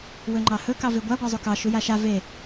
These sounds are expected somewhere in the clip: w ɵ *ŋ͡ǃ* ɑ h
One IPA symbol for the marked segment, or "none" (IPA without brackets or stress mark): ŋ͡ǃ